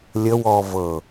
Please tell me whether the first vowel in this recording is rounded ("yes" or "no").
no